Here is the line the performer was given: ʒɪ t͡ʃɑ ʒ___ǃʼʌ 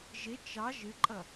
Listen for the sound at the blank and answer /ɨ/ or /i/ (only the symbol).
ɨ